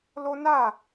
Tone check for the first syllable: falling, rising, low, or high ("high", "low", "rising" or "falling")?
high